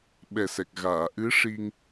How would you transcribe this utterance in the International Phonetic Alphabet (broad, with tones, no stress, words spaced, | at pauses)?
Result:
ɓɛ˨˩sɛ˨˩k̚ ɣaː˨˩˨ʔɨ˧˥ʂi˧ŋ